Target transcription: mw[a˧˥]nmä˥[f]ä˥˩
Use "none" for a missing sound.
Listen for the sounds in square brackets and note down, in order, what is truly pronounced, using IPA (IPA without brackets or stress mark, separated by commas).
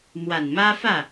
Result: a˨˩, f